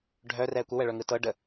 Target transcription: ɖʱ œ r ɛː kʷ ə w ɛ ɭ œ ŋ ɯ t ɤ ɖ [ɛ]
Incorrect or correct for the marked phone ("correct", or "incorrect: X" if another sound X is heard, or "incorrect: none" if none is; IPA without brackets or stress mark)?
incorrect: ə